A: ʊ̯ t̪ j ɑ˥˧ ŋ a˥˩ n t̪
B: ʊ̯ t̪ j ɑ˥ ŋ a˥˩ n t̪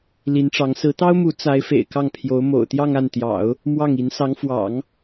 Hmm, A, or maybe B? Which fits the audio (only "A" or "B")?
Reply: A